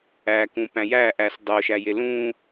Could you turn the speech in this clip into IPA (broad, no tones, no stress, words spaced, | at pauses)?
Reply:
ækũ pæ̃jæʔæs dˤoʃæje lũ